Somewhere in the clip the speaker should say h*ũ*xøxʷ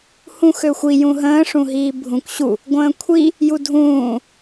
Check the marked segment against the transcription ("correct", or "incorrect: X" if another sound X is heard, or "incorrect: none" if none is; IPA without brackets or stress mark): correct